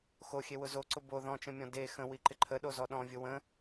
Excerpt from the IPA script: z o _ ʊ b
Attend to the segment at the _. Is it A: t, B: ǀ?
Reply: B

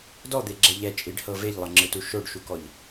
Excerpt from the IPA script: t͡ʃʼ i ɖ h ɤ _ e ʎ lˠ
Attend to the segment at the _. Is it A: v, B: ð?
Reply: A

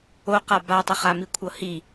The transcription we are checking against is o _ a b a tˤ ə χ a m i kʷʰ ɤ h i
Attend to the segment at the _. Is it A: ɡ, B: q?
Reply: B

